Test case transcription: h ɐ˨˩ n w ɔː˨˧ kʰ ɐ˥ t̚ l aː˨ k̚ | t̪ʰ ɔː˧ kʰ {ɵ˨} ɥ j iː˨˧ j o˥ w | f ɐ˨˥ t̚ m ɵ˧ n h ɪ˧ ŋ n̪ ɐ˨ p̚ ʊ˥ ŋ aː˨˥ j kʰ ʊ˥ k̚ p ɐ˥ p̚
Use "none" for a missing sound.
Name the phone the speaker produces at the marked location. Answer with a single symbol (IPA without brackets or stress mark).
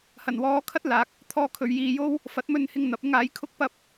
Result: ɵ˨